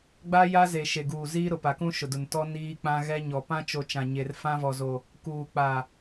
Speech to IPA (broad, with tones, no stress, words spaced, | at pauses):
ɡ͡ba˦ja˦ze˨ ʃe˨ɡuː˨ziː˦ ɾʊ˨pa˨kũ˦ ʃʊ˨dʊ˨ntɔ˦ niː˦k͡pã˦ ɣɛ˦ɲɔ˨ pã˦t͡ʃo˨ t͡ʃã˨ɲe˨r fã˦vɔ˨zo˨ | kuː˨ k͡pa˨